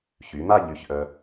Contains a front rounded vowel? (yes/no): yes